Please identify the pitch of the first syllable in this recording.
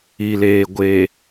low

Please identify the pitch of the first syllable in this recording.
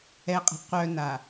low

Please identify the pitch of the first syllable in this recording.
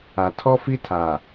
low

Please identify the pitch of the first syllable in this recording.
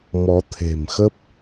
rising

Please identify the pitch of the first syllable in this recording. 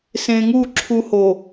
low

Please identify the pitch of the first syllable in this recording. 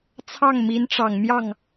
falling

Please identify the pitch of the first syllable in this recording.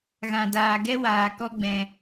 low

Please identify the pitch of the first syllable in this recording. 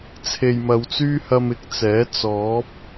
low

